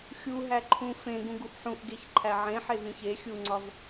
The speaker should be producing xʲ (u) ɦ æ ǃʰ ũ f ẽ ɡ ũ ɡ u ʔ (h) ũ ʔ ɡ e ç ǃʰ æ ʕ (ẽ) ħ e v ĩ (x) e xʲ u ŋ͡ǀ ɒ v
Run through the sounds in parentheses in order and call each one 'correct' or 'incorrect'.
correct, incorrect, correct, incorrect

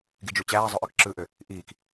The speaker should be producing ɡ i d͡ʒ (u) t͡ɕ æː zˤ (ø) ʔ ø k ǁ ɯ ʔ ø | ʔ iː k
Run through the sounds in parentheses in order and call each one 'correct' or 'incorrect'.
correct, correct

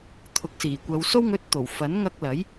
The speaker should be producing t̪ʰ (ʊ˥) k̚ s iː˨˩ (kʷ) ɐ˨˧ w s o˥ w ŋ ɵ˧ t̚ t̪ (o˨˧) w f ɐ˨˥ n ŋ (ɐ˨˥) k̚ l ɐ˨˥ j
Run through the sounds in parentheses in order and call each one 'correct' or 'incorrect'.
incorrect, correct, incorrect, incorrect

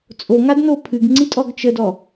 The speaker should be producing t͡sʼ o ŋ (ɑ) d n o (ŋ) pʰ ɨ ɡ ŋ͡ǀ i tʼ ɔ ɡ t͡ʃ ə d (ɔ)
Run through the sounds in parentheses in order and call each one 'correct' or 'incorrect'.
incorrect, incorrect, correct

